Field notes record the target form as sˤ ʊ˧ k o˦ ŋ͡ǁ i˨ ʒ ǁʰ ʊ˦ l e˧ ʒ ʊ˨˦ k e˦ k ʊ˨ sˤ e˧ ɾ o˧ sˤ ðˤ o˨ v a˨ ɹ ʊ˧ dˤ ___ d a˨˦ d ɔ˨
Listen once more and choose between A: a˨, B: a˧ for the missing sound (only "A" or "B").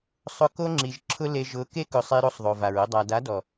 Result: A